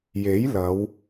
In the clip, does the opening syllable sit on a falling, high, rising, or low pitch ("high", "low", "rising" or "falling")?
rising